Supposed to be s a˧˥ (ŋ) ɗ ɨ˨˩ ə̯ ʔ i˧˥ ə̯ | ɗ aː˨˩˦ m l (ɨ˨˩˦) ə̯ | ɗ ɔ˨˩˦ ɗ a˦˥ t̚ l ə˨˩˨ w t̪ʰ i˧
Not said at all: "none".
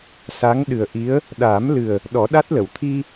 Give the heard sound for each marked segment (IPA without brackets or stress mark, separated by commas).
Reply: ŋ, ɨ˨˩